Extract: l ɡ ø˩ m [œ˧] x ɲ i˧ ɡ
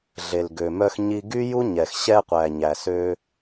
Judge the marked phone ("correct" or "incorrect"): correct